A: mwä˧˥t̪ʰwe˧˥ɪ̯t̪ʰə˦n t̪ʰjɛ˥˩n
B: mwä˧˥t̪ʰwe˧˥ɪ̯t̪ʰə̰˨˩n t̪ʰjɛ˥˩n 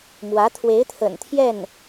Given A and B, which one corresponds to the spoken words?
B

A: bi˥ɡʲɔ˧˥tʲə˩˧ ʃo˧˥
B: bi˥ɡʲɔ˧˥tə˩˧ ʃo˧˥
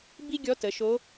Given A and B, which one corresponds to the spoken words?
B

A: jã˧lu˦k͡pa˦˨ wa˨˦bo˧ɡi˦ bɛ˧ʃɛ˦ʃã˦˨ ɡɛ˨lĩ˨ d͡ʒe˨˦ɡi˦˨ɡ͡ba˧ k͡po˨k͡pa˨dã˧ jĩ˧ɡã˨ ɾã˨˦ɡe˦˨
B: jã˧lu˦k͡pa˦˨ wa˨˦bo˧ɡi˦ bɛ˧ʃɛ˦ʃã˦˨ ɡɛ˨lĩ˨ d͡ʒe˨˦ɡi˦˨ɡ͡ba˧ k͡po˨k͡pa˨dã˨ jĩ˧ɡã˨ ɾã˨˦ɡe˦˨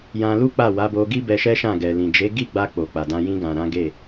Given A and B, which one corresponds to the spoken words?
A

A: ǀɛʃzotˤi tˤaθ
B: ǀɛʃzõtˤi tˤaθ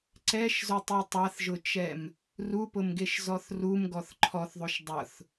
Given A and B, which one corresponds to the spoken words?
A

